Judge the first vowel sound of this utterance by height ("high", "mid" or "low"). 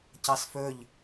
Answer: low